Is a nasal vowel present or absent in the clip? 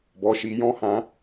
present